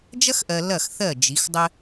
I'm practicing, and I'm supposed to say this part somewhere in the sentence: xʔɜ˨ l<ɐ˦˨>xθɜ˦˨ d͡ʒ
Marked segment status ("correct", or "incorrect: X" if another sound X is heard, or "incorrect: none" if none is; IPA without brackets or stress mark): correct